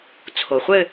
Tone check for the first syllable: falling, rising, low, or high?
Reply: low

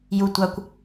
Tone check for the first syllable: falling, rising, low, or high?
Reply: low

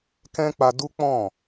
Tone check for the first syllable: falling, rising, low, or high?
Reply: high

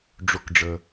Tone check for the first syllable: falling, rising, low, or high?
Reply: high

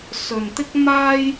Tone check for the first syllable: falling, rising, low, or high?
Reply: low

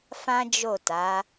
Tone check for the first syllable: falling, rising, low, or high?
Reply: high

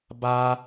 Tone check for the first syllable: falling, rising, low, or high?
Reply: high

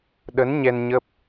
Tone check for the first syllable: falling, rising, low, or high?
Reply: rising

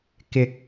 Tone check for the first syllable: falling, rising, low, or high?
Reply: rising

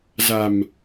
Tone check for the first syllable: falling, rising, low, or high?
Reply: low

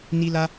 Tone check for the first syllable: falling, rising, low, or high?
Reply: high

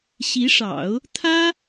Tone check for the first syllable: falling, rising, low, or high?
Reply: rising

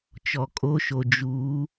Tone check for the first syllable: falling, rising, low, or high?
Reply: low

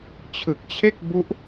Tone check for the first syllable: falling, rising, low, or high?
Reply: low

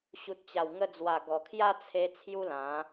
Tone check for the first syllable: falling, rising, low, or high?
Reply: low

